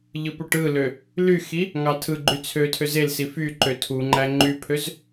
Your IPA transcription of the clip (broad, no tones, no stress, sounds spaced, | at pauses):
ʎ ɯ p u ʈ ɯ l ø | l y x i | ŋ ɑ tʰ ɯ ɡ͡ǃ y t͡sʰ ø tʰ ø z e l s i f y ǃ ø tʰ u ŋ͡ǃ æ ŋ͡ǃ y pʰ ø z